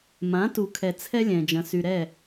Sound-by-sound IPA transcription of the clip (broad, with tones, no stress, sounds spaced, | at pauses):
m ã˨˦ t u˨ kʰ ɛ˨ t͡sʰ ɛ˦ lʲ ɛ̃˨ d͡ʒ ɐ̃˨ s y˨ ɾ ɛ˦˨